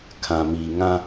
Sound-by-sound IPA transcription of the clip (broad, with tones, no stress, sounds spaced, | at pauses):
kʰ ã˨ m iː˨ ŋ ã˦